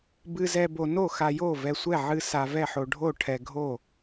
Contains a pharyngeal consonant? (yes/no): yes